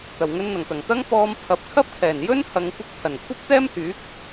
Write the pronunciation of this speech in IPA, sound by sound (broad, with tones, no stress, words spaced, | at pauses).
t̪ɐ˨˩wŋɵ˧nn̪ɐ˨˩ŋt̪ɐ˨˩ŋ t̪ɐ˥ŋpɔː˧m pʰɐ˨p̚ kʰɐ˥p̚kʰɛː˨˩njɵ˥n hɐ˨˧ŋkʷɪ˧k̚ pʰɐ˨˩nkʷʰɐ˥p̚t̪ɛː˥mhyː˨˥k̚